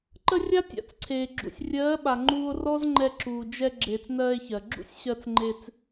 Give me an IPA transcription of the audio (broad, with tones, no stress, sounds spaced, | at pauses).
ǃ ə˦ rʲ a˦ tʲ a̰˨ t͡s ǀʰ eː˨ ɡ͡ǁ ṵ˨ sʲ rʲ ɜː˨˦ ɓ a˨ ŋ͡ǃ uː˧ o̯ r ɔ˦ z ŋ͡ǃ ɛ˧ ǁ uː˨ d͡ʒ ɛ˧ ɡ͡ǁ eː˨ t͡s n ɜː˧ e̯ ç ɜ˨ ɡ͡ǁ ṵ˦ sʲ ɕ ɜ˧ t͡s ŋ͡ǃ e˧ t͡s